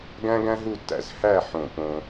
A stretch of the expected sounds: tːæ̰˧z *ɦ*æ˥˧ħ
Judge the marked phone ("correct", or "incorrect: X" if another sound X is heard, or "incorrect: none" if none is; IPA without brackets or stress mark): incorrect: h